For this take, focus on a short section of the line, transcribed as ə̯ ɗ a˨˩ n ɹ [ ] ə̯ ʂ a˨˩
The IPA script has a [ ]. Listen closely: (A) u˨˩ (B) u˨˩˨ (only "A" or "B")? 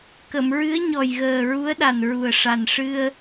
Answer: A